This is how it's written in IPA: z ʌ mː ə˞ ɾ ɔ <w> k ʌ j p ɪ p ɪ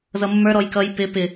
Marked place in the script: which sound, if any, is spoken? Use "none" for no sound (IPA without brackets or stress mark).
j